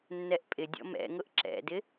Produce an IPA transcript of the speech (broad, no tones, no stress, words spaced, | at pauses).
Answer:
nːɛʔpʼɪdʲɔ̰ mɛ̰ŋʊʔ ǁɛ̰dɪ